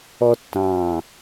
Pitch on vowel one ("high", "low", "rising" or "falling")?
high